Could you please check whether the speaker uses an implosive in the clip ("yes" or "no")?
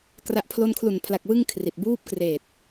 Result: no